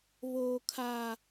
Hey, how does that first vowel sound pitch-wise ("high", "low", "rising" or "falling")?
low